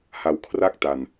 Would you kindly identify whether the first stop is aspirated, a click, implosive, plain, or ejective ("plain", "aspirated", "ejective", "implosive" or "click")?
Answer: aspirated